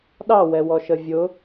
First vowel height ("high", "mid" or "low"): low